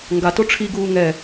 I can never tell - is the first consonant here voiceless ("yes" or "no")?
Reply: no